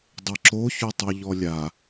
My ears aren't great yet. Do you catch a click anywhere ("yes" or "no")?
yes